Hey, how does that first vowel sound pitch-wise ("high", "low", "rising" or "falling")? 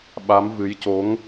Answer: rising